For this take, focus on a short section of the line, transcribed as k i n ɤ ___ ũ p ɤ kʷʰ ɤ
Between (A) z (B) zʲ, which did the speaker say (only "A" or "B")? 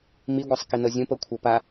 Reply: B